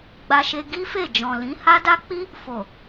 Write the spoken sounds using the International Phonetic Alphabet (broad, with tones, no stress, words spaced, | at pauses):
ɡ͡ba˧ʃe˧ ɡi˦fe˦˨ d͡ʒɔ̃˨lĩ˨˦ ha˦da˦ k͡pi˦ | fo˨